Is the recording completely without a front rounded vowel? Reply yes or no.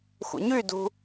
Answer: no